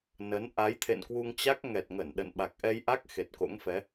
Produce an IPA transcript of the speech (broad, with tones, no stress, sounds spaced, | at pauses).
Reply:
n ə˨˦ n ʔ a˨˦ j t̪ʰ ḛ˧˨ n k w u˧ ŋ t͡ɕ a˦˥ k̚ ŋ ɛ˨˩ t̚ ŋ ə˧˩ n ɗ ə̰˧˨ n ɓ a˨˩ k̚ ʔ ɛ˧ j ʔ a˦˥ k̚ x e˨˩ t̚ k o̰˧˥ ŋ f ɛ˨˦